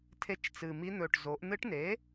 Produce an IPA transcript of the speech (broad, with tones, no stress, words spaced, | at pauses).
tʰe˧˥t͡ʃ t͡sɨ˨˩mi˧˥n̪ɵ˨˩ʈ zo˩˥ʔ n̪ɨ˧˥ʈne˩˥